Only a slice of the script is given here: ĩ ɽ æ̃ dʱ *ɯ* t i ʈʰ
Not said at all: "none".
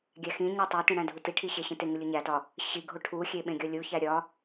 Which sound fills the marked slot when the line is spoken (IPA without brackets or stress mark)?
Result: u